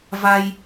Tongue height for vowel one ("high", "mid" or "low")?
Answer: low